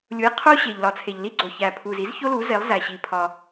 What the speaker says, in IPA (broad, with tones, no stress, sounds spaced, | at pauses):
lʲ u˩˥ j qʰ o˥ ɕ e˩ ʎ l ɒ˩ t͡sʰ e˩ ʎ l i˥ ɡ͡ǀ o˩ ç æ˩ pʰ u˩ z i˩˥ z ç o˥ l u˩˥ z e˩˥ lˠ z æ˩ ɕ i˩ pʰ ɒ˩